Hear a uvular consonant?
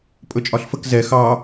no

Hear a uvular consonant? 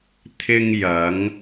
no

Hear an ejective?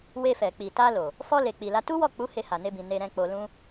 no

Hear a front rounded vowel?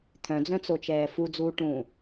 yes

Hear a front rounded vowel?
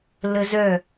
yes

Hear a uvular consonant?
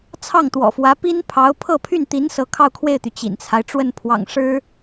no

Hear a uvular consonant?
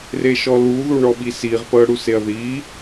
yes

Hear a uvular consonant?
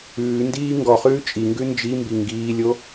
yes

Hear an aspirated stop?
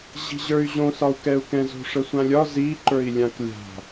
no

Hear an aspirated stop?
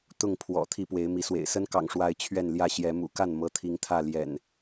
yes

